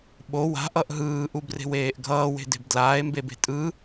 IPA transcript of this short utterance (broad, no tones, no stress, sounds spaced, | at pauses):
ɓ o w a̤ ʔ ʌ ʔ ɦ ɯː ʔ u b r e̤ w eː ʔ ɡʱ ʌː w e̤ d e̤ b d l aː e̯ m b e b e̤ tʼ ɯ